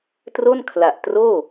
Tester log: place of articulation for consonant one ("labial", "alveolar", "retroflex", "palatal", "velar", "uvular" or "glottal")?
alveolar